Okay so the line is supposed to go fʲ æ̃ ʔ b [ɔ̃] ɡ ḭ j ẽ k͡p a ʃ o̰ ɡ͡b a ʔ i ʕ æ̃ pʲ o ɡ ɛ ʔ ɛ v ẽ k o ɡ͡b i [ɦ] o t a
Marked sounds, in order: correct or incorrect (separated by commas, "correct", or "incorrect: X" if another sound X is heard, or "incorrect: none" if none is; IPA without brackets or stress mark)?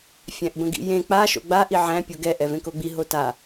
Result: incorrect: ə̃, correct